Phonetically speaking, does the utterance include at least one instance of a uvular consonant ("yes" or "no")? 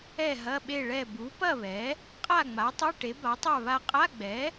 yes